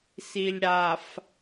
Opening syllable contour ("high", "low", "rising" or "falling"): low